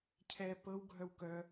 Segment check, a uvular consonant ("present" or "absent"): absent